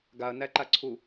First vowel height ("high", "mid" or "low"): low